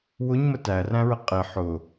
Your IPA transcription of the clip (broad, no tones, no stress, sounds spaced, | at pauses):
w ʊ ɲ m ə t æ r æ̃ ɹ ə qʼ ɪ ħ ʊ